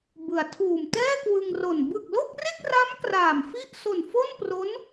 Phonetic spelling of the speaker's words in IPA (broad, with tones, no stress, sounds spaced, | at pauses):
b ɯ˩˦ a̯ tʰ uː˨˩ m t ɛː˥˩ k w ɯ˧ ŋ r o˨˩ n b ɯ˨˩ k̚ l o˥˩ k̚ r e˥˩ k̚ r a˦˥ m k r aː˨˩ m f i˥˩ ʔ s o˨˩ n f o˥˩ n p r o˦˥ n